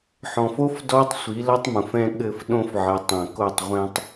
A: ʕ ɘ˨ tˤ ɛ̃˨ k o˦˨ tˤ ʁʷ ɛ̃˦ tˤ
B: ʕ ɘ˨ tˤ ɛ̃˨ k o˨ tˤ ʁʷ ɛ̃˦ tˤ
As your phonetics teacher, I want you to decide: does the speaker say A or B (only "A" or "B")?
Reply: A